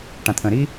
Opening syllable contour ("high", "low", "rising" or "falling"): low